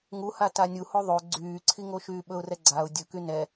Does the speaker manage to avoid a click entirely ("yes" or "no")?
no